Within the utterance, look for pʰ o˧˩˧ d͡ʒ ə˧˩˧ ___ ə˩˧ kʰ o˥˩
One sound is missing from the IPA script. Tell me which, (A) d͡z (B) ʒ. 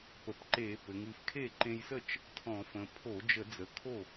A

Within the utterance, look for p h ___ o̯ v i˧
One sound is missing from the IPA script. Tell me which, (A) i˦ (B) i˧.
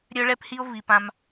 A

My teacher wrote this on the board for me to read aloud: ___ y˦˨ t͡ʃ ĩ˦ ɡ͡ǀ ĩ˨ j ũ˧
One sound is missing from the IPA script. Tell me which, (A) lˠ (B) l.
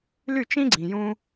B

